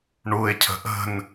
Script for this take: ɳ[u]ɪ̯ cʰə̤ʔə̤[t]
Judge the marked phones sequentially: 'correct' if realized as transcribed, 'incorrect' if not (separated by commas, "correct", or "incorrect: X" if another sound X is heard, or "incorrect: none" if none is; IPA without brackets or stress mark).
correct, incorrect: n